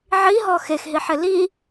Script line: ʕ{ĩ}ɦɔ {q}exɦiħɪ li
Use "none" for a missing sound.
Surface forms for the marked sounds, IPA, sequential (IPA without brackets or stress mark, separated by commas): i, x